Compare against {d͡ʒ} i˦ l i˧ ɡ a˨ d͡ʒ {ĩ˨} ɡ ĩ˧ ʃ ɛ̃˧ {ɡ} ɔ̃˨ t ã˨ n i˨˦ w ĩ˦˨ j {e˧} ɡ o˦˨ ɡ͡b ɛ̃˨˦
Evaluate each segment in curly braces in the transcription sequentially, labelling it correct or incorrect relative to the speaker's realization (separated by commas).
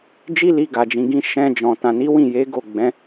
correct, correct, incorrect, incorrect